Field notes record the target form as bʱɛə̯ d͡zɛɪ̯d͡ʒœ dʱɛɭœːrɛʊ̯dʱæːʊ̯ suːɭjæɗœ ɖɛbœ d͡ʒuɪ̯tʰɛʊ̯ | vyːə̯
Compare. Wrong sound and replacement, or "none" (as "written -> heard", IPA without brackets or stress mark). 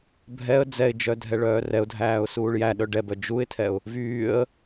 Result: none